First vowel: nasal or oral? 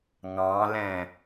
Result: nasal